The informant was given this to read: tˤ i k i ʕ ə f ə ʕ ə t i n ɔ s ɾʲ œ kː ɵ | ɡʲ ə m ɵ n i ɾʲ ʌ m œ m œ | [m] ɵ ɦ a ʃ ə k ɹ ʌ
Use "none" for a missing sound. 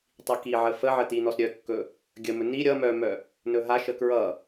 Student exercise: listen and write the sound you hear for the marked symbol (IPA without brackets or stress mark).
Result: n